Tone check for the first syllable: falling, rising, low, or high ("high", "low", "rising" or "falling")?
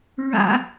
high